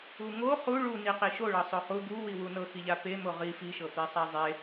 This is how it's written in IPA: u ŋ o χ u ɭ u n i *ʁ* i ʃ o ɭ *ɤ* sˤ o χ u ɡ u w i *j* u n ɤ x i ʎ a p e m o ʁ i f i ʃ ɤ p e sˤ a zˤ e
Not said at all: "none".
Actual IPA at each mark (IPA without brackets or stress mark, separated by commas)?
q, ɤ, w